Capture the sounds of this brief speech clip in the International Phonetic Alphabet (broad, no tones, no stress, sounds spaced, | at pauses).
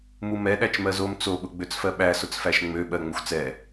m u m ɛ ɗ æ t͡ʃ m ɜ z o m t͡s o ɓ ʊ ɡ͡b ø t͡s f ɜ ɓ æ s ʊ t͡s f æ ʃ ŋ͡m ø ɓ ɜ ŋ͡m ə xʷ t͡s ɛ